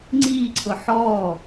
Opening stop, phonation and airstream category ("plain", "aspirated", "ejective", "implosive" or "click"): click